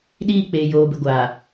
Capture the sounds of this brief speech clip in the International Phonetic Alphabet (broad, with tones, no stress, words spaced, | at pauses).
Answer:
ɗiː˦˨k͡peː˨ joː˨bɪ˨ ɡʷaː˨